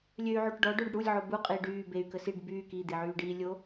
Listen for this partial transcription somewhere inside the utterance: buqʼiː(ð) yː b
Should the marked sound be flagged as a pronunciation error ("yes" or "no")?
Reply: yes